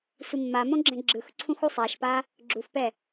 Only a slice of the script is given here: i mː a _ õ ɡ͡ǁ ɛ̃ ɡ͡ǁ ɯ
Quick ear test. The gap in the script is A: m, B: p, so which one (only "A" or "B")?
A